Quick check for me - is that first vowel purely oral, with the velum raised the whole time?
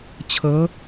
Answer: yes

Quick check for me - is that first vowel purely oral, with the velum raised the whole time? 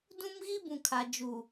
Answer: no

